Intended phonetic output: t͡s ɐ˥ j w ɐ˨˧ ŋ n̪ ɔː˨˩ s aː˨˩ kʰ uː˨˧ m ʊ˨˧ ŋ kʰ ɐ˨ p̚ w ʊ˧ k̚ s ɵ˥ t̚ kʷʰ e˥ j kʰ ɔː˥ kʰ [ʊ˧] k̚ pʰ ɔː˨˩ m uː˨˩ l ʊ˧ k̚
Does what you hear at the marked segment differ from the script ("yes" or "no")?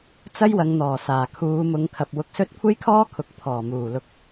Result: yes